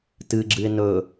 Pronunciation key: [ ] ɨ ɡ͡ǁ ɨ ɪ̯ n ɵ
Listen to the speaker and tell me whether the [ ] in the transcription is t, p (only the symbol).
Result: t